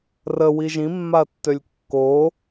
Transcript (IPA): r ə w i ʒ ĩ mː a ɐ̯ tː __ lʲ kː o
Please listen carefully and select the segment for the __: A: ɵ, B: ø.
B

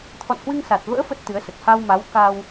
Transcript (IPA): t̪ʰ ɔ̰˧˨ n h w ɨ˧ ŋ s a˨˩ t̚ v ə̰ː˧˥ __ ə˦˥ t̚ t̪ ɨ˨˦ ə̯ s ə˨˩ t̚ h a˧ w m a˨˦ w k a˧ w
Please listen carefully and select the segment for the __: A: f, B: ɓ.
A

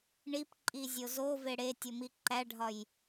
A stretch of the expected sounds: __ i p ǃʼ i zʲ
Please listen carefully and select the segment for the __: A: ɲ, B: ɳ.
B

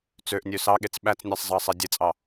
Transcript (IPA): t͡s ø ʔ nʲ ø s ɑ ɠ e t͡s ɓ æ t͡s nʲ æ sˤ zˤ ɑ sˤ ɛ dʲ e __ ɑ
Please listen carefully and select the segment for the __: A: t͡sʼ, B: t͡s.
A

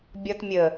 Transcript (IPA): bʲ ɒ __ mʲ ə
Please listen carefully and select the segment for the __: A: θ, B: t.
B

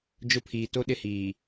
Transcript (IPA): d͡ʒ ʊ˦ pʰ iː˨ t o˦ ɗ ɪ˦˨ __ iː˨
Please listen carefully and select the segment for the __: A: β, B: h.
B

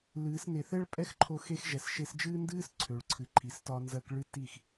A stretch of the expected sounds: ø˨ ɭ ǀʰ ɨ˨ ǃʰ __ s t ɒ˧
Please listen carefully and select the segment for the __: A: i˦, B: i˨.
B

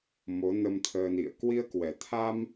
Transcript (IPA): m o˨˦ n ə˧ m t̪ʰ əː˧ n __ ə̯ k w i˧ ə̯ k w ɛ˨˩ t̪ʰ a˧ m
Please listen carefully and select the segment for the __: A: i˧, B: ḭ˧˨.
B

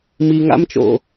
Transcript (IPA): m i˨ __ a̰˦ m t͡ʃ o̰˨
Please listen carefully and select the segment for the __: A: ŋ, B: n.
A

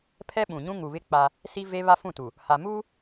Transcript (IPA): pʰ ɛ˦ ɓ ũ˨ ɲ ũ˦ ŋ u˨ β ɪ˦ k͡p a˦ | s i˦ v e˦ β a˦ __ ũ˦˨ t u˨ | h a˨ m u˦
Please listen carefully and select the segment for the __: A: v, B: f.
B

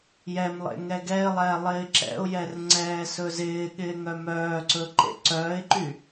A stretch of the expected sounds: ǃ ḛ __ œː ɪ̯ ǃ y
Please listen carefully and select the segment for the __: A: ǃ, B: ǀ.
B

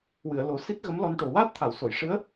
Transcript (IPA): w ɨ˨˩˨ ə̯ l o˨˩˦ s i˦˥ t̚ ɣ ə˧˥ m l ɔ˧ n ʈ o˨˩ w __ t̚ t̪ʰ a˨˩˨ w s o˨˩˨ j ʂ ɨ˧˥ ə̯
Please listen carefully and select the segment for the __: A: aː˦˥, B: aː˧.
A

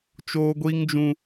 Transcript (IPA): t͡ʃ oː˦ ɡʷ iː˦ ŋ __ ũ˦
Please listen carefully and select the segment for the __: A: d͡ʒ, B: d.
A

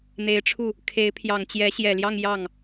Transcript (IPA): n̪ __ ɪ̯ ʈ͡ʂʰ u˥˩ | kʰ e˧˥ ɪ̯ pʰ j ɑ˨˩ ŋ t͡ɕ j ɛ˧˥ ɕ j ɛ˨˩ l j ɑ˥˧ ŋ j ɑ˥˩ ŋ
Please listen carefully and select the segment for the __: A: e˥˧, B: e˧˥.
B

